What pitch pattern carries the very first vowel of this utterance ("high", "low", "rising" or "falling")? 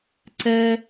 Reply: high